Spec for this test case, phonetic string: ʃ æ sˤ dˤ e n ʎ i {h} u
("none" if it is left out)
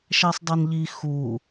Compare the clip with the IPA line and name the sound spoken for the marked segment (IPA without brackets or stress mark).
x